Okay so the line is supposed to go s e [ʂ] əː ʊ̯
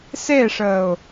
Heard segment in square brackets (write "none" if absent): ʂ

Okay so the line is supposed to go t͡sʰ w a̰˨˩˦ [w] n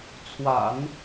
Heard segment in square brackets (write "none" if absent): none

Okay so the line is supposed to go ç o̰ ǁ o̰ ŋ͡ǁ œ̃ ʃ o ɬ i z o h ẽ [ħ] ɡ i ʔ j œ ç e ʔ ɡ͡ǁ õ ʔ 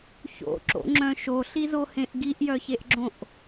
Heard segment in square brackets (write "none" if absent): ʔ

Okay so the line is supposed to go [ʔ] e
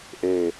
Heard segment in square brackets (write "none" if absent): ʔ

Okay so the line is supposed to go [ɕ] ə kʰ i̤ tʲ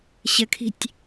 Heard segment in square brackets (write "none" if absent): ɕ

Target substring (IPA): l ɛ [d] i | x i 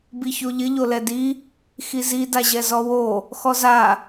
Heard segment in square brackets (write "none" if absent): d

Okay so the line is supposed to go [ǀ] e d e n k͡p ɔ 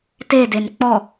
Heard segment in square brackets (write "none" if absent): t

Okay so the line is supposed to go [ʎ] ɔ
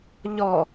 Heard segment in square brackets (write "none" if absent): ʎ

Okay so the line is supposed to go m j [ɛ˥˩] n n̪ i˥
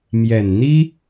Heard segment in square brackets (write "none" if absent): ɛ˨˩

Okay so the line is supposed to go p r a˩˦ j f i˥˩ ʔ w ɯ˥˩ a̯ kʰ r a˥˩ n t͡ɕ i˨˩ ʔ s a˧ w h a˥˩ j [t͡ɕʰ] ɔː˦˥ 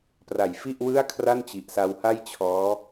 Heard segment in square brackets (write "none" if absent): t͡ɕʰ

